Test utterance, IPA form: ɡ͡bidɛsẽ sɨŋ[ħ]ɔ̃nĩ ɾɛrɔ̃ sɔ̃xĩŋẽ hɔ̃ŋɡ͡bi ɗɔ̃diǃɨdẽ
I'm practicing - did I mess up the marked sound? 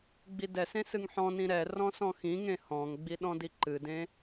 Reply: no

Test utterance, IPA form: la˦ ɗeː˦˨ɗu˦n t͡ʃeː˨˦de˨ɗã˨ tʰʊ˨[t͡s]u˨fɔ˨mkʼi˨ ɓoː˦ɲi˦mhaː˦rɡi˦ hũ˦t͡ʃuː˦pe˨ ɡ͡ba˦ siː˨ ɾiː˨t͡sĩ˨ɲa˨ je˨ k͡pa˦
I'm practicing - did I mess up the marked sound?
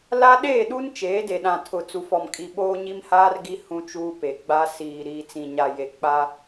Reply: no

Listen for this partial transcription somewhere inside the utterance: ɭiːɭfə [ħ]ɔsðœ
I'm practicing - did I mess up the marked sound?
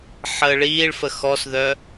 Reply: yes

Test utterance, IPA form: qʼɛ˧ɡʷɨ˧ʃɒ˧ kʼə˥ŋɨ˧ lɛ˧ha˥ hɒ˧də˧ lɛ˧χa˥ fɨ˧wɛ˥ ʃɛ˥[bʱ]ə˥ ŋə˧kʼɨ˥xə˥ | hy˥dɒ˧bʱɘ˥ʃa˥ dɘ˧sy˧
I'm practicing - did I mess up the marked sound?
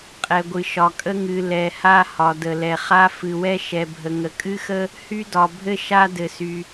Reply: no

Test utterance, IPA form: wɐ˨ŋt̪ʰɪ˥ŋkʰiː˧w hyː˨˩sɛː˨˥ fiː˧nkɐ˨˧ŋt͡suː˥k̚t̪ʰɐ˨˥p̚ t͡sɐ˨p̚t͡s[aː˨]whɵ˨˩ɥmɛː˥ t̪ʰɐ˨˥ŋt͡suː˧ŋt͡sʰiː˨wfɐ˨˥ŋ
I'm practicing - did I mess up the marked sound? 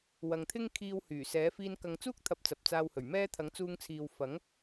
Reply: yes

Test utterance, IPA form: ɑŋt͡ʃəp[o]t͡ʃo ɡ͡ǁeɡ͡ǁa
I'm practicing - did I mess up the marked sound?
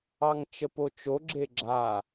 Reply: no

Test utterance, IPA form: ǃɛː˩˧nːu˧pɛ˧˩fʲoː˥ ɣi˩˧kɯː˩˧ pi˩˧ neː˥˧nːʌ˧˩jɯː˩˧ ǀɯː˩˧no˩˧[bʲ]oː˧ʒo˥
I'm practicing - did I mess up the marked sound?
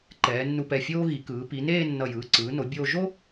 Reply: no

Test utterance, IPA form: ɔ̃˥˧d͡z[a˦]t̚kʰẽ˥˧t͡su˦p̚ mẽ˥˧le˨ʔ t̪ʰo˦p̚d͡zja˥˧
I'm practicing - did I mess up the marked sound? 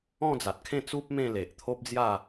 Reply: yes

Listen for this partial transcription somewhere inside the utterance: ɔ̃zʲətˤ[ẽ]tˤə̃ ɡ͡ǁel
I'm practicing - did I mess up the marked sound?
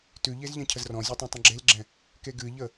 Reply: no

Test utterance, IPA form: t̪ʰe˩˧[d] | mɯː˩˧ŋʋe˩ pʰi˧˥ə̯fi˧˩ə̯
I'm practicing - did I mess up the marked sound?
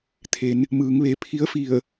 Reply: yes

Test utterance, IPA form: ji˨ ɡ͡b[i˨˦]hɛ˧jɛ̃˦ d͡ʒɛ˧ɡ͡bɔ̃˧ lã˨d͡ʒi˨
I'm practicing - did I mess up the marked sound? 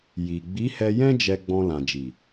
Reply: no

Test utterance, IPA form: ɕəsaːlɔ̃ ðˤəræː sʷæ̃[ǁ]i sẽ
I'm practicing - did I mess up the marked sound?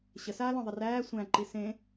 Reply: yes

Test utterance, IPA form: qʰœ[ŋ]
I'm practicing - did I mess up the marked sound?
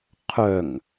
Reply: no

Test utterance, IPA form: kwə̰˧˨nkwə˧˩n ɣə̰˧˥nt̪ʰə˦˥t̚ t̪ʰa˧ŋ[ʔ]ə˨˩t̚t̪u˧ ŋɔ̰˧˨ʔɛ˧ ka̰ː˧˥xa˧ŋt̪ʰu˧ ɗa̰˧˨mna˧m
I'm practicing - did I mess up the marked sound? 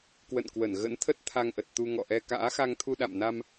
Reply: no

